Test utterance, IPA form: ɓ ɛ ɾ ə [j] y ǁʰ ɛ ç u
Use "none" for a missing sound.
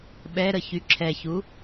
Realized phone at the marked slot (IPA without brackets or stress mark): ç